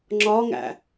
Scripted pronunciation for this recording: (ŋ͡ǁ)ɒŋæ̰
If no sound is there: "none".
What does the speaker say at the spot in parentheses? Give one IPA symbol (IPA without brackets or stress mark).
ŋ͡ǁ